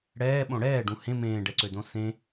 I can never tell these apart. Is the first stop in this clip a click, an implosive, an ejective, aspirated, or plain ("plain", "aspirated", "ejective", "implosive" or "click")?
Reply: implosive